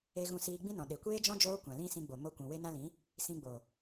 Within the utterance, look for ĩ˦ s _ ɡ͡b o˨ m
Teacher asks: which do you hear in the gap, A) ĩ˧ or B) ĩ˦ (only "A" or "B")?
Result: A